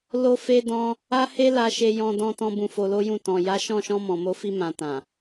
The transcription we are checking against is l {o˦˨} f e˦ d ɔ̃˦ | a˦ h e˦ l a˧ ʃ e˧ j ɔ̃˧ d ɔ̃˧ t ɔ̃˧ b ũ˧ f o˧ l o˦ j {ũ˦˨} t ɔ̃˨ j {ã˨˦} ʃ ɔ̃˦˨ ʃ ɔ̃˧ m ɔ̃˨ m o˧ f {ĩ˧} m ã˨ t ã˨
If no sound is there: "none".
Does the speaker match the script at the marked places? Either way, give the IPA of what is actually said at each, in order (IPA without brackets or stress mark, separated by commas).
o˦, ũ˦˨, a˨˦, i˧